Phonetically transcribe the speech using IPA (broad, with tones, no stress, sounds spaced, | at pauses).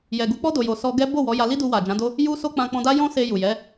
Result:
j ɛ˨ ɡ u˨˦ k͡p ɔ˦ d o˧ j o˧ s ɔ˦ ɡ ɛ˦ b o˦˨ w ɔ˨˦ j a˧ l i˦ d u˧ w a˨ d͡ʒ ã˨˦ d o˦ | j u˦ s o˦ k͡p ã˧ k͡p ɔ̃˧ d a˦ j ɔ̃˦ s e˧ j u˨ j ɛ˨˦